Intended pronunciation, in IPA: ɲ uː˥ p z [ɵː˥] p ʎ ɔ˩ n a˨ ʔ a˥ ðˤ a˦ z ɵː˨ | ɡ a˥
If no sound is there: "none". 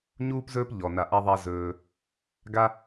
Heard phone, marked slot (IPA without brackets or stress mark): ɵː˥